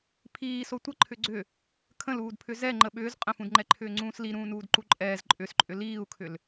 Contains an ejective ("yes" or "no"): yes